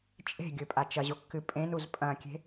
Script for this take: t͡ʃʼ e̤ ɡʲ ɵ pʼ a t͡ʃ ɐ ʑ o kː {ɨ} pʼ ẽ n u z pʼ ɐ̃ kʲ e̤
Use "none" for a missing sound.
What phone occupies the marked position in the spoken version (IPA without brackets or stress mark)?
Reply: ɨ